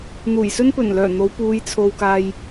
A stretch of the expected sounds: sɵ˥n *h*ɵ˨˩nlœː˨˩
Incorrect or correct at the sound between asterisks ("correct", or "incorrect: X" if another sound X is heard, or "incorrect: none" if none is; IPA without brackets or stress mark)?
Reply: incorrect: p